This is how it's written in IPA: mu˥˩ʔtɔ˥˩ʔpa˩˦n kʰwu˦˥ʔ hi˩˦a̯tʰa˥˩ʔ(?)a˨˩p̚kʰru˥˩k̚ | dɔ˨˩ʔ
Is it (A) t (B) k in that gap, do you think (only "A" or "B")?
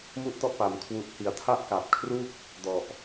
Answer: B